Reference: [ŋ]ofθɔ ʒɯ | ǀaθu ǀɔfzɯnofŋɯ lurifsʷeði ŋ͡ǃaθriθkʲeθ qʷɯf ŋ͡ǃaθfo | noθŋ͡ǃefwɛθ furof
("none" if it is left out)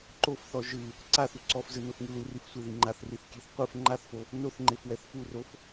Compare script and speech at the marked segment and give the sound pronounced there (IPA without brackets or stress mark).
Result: ǃ